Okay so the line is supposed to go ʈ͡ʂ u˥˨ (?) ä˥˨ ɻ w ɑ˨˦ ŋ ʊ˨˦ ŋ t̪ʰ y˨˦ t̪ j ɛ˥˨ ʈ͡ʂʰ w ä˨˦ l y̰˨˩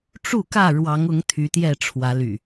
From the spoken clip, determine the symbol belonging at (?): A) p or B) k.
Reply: B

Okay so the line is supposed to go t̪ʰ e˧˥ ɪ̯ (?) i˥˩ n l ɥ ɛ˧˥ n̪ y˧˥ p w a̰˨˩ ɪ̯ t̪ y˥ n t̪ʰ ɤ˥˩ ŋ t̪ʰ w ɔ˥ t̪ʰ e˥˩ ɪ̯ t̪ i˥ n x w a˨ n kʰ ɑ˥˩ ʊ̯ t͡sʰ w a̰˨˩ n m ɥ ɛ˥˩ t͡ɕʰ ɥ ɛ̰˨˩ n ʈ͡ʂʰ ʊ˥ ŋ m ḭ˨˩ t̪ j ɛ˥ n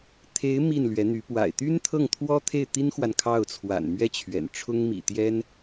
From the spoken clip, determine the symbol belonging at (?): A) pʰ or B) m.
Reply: B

